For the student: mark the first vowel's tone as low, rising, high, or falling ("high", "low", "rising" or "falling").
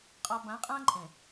low